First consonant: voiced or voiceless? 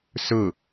voiceless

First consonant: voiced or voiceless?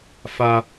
voiceless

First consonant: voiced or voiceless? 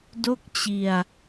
voiced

